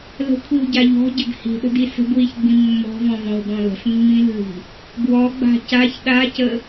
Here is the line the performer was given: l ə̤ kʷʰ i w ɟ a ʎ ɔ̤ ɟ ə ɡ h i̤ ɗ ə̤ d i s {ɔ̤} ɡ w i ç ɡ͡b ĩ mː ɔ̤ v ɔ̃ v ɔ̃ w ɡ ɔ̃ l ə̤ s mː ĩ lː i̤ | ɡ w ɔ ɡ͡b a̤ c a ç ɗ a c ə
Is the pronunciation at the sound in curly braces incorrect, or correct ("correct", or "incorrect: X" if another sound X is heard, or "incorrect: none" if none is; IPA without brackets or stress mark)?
incorrect: ə̤